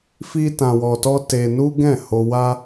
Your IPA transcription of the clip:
fi˦tã˧wɔ˧tɔ˦ te˧ nu˦ɡɛ̃˦˨ ho˧wa˦

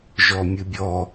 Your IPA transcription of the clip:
ʒɔmʲɨbʲɔ

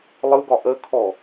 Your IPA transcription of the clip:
lˠɯɡɒ ʔəkʰɔ

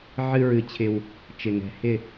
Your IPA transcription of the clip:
ʕɨ˧ɹɨ˨˩t͡ɕʰɪ˨˩w | t͡ʃɪ˨˩ŋɛ̤˨˩ hɪ˥˨

